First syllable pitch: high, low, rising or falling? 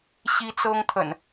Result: high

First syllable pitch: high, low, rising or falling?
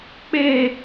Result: falling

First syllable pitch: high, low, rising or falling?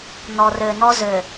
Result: low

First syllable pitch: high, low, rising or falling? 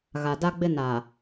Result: low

